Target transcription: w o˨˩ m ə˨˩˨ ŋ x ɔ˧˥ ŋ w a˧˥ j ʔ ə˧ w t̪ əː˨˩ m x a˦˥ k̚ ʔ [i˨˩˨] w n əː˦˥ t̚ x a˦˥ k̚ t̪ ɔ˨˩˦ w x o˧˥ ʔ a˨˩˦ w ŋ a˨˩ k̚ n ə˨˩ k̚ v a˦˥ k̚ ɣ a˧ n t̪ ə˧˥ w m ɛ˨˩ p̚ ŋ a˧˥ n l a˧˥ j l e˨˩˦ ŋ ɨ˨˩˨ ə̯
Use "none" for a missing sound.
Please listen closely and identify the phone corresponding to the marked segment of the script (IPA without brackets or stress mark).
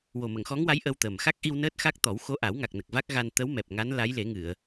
i˧